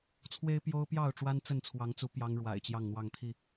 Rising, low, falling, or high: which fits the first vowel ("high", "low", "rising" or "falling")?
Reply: high